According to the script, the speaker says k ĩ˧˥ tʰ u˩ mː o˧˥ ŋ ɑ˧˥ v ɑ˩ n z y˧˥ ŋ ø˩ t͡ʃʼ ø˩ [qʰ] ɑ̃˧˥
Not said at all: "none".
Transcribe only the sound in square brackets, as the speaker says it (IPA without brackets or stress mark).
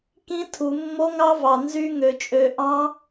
ʔ